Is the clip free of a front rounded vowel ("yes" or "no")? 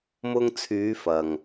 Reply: no